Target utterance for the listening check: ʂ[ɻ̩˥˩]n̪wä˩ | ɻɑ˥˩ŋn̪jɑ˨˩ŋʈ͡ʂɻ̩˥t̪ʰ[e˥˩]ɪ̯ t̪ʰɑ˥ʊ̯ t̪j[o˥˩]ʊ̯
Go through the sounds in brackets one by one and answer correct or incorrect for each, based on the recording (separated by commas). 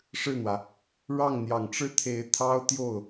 correct, incorrect, correct